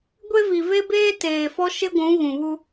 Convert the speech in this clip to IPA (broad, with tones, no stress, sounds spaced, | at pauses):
ɡʷ e˦ v i˨ v e˦ b eː˦ t eː˨ f ɔ˦ ʃ ɪ˦ ɡʷ ũ˨˦ ɣ ũ˨ β u˦